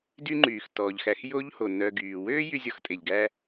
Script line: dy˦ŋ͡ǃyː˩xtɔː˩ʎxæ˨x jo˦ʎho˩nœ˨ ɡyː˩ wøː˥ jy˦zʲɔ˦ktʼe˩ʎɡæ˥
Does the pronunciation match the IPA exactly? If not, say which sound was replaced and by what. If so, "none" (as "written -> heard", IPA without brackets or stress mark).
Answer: k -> x